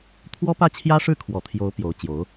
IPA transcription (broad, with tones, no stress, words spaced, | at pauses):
t̪ʰwɔ˥pä˥˩t͡ɕʰjä˥ ʂɻ̩˥˩kʰwɔ˨˩t̪ʰjo˧˥ʊ̯ pjo˧˥ʊ̯t͡ɕjo˧˥ʊ̯